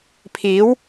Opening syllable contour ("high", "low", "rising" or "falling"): rising